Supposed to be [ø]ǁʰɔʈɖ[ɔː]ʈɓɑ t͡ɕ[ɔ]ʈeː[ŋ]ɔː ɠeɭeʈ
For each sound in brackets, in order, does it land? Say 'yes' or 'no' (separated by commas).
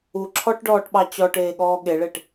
no, yes, yes, no